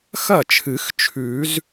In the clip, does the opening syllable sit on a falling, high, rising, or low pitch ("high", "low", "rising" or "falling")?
falling